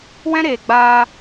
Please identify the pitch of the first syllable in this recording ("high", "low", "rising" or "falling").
high